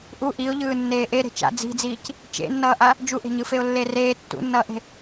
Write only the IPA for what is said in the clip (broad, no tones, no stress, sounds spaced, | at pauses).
ʔ u ʔ i ʊ̯ ʎ ɯː nː eː ʔ e ɾ e̤ t͡ʃ a̰ d͡z i̤ d͡z iː c | t͡ʃ ḛ nː ʌː ʔ a | d͡ʒ u ʔ e̤ ɲ ɯ f e ʊ̯ lː e r eː tː ṵ nː ʌː ʔ e̤